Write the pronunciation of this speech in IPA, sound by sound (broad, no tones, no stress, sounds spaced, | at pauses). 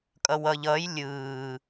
kʼ ʌ w ʌ ʎ ʌː j lʲ ɯː